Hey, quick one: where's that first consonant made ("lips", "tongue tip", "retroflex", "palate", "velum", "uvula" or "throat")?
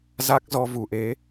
tongue tip